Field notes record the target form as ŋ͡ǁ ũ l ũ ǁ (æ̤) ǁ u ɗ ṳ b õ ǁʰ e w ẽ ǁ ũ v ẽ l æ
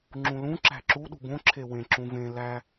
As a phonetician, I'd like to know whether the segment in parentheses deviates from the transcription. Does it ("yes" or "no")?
no